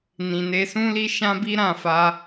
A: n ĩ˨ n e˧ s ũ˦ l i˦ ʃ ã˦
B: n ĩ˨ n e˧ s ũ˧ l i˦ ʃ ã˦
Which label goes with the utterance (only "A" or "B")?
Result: A